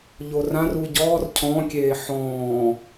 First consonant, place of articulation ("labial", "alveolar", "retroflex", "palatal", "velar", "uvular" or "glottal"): palatal